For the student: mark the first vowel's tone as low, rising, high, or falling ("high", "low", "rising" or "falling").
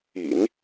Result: low